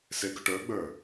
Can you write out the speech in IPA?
seɡʊʈə˞ɡ͡bə˞

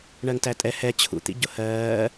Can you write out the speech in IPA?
ɳɜŋtætʼɛ hɛ t͡ɕʰṵ t̪ḭɟʊhɜː

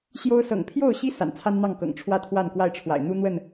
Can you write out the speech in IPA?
ɕjo˦ʊ̯ sɤ̰˨˩ŋpʰjo˥˨ʊ̯ɕi˦ sa̰˨˩nt͡sʰa˦nn̪ɑ˥˨ŋkɤ̰˨˩ŋ ʈ͡ʂʰwä˥˨ t̪ʰwa˥˨nkwa˥˨ɪ̯ʈ͡ʂʰwa̰˨˩ɪ̯ n̪u˦n̪wə˥˨n

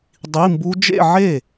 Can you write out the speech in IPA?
dˤi˧˥˧mbu˦˥ d͡ʒḛ˥˧ʕe˥˩

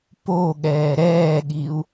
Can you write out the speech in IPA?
poɠɛː ɾɛːɠiu̯

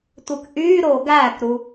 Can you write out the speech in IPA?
tʷɯkʔyːɾoː ɡæːkɾu

